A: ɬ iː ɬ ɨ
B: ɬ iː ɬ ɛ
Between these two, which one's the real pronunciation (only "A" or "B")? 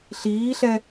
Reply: B